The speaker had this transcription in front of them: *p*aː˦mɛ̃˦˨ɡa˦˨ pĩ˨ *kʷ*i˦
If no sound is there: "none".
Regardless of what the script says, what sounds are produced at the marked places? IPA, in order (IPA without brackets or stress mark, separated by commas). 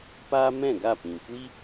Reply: p, kʷ